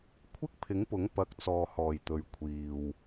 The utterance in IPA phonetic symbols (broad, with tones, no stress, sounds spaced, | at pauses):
kʷʰ ɪ˥ k̚ pʰ ɪ˨˥ ŋ p ʊ˨˥ ŋ p ɐ˨˥ k̚ t͡s ɔː˨ h ɔː˨˩ j t̪ ɵ˨ ɥ kʷʰ iː˨ w